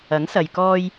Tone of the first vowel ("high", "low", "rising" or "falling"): rising